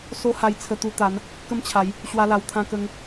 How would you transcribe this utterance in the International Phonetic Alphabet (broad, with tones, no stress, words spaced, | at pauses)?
so˦ha˧jt͡sʰə˧ t̪u˧t̪a˨˦n | kə˦mt͡ɕʰa˨˦j | ɕwa˦la˧wt̪ʰã˦kə˦ŋ